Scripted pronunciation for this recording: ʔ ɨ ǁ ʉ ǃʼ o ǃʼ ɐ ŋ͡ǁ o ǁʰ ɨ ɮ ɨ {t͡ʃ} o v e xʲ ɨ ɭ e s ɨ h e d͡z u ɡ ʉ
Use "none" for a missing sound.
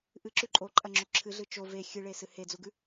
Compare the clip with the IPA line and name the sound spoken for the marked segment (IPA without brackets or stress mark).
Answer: t͡ʃ